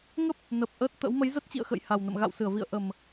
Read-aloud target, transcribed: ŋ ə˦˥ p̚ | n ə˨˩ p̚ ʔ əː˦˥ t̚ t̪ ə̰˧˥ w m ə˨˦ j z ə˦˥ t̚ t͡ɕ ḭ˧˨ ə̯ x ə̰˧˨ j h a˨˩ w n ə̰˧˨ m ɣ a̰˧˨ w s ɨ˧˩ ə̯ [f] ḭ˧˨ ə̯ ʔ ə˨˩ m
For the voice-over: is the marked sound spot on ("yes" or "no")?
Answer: no